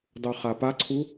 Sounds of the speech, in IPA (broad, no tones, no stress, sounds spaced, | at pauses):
dˤ u χ a p a ǀʰ u